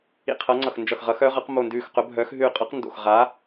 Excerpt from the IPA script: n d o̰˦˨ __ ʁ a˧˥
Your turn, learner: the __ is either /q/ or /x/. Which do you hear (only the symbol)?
x